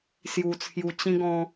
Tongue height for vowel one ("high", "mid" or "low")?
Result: high